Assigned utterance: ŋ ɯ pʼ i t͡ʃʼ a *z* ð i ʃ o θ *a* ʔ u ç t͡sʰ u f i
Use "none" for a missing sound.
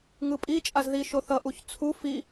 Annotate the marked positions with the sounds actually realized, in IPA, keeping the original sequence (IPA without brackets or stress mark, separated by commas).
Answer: z, ʌ